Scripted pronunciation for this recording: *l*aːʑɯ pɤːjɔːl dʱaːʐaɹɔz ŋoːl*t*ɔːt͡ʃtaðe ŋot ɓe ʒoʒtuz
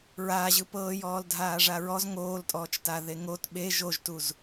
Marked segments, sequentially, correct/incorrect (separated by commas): incorrect, incorrect